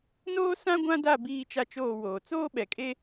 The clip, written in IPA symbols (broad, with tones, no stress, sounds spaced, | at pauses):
n oː˦ s ã˦ ɡʷ ã˦ d a˦˨ b iː˦ t͡ʃ a˦ t͡ʃ oː˦˨ w oː˨ t͡s oː˦ ɓ ɛ˨ kʼ e˦